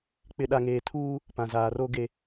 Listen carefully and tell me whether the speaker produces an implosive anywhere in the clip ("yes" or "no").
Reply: yes